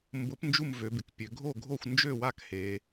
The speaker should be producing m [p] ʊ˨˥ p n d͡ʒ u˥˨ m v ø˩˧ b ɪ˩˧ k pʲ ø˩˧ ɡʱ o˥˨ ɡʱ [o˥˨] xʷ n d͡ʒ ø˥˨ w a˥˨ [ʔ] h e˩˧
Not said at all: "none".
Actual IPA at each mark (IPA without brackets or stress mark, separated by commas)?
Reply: b, o˥˨, k